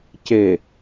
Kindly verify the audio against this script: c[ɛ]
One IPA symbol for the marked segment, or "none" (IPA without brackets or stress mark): e